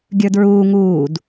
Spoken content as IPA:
ɡʲə˞dɹuː ŋuːd

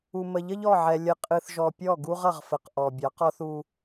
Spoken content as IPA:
u˨mə˨ʎə˦ʎ ɔ˦˨ʕɛ˨ lʲə˨ qʼɨ˨θʒɔ˨ pʲɔ˦˨ɡu˦ʁʌ˨ʁfə˨q ʔɔ˨bʲɑ˨˦q ɔ˦θu˦

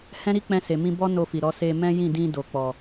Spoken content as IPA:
hɛ̃˦ɾi˦k͡pɛ̃˧ se˨mĩ˧bɔ˦ no˧fi˨ɾɔ˨˦ se˧ mɛ̃˦jĩ˦˨dĩ˧ do˨k͡pɔ˨

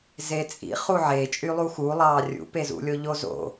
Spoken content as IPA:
zet͡sʼḭ χuʕe t͡ʃʼylˠuxu lˠɑːrʲṵ pezṵlʲo ʎozo̰

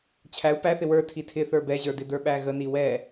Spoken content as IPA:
t͡ɕʰæu̯ pæθɪ wə˞ tʰitʰɪ θə˞bɛʑə˞dɪ də˞ɓæɣəni wɛ

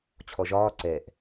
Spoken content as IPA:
t͡ɕʰɔʒɒː ǀɛʔ

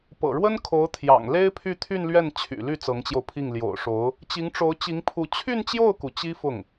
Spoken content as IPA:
pɤ̰˨˩ɻwə˥nkʰo˧˥ʊ̯ t̪ʰjɑ̰˨˩ŋle˥ɪ̯pʰy˥˧ t̪ʰy˥˧nlɥɛ˥˩n t͡ɕʰy̰˨˩ly˥˩ t͡sɤ˧˥ŋt͡ɕjo˧ʊ̯pʰi˥˩ŋ ljo̰˨˩ʊ̯ʂo˧˥ʊ̯ | t͡ɕi˧˥ŋʈ͡ʂo˧˥ʊ̯t͡ɕi˧˥ŋpʰu˧˥ t͡ɕʰy˥˧nt͡ɕjo˥˩ʊ̯ku˩ t͡ɕi˥fʊ˥˩ŋ

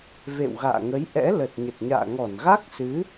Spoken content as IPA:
vḛ˧˨w ɣa̰ː˧˨ŋə˨˦jʔɛ̰˧˥ lə˨˩t̚ ɲə˨˩t̚ɲa̰ː˧˨ ŋɔ˧˩nɣa˦˥k̚sɨ˨˦

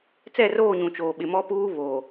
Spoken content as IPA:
t͡sɛ˦˨roː˦˨ɲũ˨ t͡ʃoː˨ɓɪ˨mɔ˦puː˦ βo˨

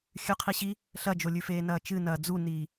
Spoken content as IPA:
xʲʉqʰiɕi | ɬɐd͡ʒolʲʉfeː nɐːt͡ʃɨnɐː d͡zuniː

